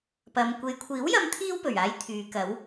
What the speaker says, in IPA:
p ɐ˨ m kʷ e˨ j kʷʰ iː˨˥ w j ɐ˧ m t̪ʰ iː˥ w p ɵ˨˩ ɥ aː˧ j t̪ʰ yː˨˧ k ɐ˨˥ w

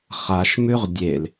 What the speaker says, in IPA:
χ a ʃ m ʉ ʁ dʲ e l

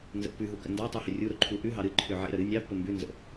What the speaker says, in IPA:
n z ə̰ pː ʉ ɦ u k ə̰ n d ɑ tˤ u h ʏ rʲ u ɾ o ǃʰ u ʔ ʉ ɦ ɑ ɾ ɨ ǃʰ ʏ ʕ ḛ ɾ ə ɾ ɨ nʲ ɑ pː ə m b ʉ n z ə̰

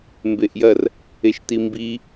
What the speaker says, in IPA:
m b e ʔ j ɐ r | e ʃ t i m b i

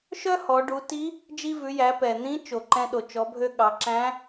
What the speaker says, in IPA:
ʃ œ˥ h ɔ˩˧ ɖ u˩˧ t i˧˥ | d͡ʒ i˧ v ʉ˩˧ j æ˩˧ p ɛ˩ n̪ ĩ˧˥ t͡ʃ o˩ ǃ ɛ̃˧ ɗ o˩ t͡ʃ ɔ˩˧ bʱ ø˧ ɠ ɑ˩˧ ǁ æ̃˧˥

